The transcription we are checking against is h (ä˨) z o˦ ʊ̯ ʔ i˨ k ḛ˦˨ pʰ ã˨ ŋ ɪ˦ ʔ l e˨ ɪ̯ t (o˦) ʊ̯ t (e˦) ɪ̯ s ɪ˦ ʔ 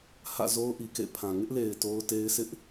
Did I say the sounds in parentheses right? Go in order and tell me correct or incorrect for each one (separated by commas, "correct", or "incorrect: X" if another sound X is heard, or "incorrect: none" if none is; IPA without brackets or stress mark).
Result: incorrect: ä̰˦˨, correct, correct